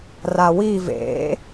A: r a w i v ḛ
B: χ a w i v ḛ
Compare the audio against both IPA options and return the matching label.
A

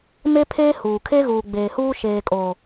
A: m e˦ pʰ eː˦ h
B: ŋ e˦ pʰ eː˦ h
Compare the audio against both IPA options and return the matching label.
A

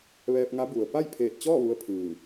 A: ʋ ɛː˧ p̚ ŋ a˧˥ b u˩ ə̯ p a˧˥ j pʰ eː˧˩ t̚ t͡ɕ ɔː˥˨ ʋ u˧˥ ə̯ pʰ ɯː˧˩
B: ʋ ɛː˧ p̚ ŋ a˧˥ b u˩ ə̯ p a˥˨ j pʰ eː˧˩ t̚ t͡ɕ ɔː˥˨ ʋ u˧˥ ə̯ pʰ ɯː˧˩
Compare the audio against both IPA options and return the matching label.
B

